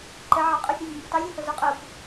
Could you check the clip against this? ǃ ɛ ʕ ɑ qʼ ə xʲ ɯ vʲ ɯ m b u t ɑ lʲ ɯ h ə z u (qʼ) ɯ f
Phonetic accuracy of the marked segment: correct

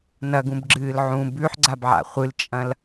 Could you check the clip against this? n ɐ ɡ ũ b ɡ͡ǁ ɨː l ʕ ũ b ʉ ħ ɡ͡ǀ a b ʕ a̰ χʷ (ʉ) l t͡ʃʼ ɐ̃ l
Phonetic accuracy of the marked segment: incorrect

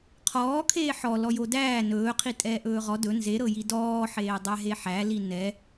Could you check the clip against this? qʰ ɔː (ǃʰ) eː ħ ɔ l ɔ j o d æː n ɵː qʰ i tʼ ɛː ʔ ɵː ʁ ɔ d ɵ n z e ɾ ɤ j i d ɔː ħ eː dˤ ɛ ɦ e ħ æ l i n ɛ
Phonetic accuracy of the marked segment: incorrect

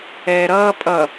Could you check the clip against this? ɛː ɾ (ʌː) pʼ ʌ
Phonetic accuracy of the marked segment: correct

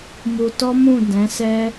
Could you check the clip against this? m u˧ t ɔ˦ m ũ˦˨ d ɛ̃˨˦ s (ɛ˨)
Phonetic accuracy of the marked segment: incorrect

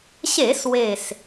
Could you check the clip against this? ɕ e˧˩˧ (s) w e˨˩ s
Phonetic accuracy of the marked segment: correct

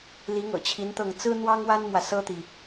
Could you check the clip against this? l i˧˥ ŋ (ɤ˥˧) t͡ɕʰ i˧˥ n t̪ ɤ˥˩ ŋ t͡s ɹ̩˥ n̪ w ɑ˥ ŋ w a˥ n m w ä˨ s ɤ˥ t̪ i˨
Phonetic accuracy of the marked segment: incorrect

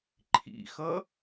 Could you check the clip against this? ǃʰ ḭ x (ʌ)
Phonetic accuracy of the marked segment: correct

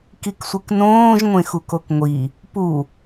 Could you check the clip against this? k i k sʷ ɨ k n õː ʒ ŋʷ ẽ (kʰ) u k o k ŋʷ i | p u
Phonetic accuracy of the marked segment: incorrect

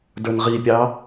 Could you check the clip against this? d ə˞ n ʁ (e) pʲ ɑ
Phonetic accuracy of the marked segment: incorrect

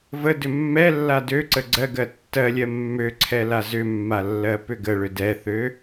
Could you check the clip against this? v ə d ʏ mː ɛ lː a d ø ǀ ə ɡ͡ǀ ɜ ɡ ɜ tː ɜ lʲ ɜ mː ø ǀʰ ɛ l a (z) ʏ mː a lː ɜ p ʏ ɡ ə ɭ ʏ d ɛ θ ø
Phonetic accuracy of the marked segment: correct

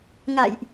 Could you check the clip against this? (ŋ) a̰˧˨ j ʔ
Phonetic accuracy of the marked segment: correct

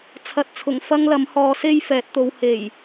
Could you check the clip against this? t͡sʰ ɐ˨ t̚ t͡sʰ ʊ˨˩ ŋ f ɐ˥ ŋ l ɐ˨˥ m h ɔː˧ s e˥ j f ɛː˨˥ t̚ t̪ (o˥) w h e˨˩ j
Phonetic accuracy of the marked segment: incorrect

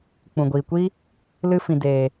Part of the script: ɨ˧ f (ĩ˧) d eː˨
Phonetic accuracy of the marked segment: incorrect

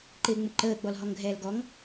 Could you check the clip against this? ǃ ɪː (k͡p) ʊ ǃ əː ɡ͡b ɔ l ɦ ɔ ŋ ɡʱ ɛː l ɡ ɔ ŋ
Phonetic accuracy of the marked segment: incorrect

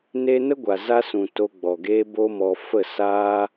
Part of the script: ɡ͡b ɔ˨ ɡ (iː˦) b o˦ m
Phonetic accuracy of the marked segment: incorrect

